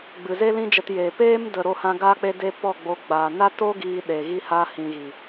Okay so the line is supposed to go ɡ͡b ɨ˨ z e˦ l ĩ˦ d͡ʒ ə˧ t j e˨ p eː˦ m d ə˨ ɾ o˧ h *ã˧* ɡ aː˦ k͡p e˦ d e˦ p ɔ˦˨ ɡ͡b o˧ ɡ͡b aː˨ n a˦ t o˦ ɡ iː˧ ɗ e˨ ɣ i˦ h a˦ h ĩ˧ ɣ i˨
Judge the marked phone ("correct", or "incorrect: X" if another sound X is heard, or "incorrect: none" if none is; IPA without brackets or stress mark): correct